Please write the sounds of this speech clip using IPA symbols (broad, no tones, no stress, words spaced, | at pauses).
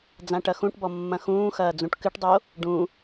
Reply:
d͡zãʈɐxũʈbɔ mːɐ̃xũːxɐː d͡zũʈkɨʈdˤo | ɖũ